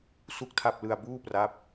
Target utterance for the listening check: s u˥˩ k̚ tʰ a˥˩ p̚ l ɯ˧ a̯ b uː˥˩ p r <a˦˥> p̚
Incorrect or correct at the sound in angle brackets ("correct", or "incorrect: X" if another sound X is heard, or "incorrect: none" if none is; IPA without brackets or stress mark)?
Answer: incorrect: a˥˩